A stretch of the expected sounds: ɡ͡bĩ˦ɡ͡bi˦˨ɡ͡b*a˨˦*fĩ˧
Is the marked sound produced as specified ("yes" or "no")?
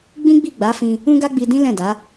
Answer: yes